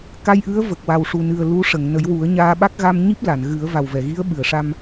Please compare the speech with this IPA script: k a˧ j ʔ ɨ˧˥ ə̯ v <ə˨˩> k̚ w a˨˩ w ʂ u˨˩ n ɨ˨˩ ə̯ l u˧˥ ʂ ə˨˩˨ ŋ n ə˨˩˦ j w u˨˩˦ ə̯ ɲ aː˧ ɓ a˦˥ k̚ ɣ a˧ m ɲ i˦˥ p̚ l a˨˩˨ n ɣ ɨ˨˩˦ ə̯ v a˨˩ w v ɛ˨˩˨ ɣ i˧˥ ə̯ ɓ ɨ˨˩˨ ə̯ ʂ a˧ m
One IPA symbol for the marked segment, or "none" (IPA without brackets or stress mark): ə˨˩